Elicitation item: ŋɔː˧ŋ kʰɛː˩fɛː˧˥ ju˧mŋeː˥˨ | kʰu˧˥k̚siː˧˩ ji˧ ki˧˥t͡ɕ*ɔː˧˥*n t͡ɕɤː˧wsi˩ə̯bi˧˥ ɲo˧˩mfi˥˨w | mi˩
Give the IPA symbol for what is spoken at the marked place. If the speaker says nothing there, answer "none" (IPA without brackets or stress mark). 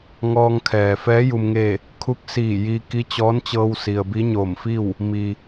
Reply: ɔː˧˥